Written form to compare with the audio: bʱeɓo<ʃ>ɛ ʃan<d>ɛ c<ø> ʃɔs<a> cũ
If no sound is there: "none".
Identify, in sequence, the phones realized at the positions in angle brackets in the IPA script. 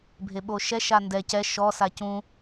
ʃ, d, ɛ, a

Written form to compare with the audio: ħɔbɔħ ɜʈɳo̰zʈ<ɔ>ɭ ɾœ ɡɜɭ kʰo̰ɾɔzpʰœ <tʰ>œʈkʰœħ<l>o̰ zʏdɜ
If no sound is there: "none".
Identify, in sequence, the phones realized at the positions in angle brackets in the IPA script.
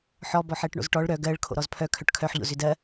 ɔ, kʰ, ʎ

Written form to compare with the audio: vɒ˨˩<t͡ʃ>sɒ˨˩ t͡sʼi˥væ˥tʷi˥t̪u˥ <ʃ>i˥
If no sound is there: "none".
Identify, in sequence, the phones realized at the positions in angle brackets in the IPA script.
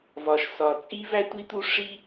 ʃ, ʂ

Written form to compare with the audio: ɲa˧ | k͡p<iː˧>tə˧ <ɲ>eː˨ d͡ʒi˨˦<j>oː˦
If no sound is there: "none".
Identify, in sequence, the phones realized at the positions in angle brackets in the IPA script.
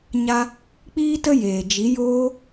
iː˧, j, j

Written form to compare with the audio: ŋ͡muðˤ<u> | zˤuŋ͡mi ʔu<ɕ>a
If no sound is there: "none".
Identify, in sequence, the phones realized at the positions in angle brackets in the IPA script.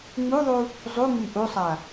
u, sˤ

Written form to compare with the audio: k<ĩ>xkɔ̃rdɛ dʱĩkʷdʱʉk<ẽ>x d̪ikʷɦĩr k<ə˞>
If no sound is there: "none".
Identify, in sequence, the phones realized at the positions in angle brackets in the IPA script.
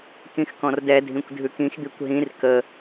ĩ, ĩ, ə

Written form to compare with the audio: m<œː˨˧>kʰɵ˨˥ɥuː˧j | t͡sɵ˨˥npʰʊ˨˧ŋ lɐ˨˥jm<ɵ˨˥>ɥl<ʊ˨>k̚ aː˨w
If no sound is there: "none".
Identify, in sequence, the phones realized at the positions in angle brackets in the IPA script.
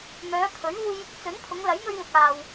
œː˨˧, ɵ˧, ʊ˨

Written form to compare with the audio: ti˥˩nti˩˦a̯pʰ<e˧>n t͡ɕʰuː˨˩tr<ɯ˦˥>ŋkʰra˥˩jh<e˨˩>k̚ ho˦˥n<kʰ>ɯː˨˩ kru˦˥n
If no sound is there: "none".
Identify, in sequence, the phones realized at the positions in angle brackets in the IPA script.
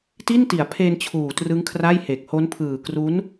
e˧, ɯ˦˥, e˨˩, pʰ

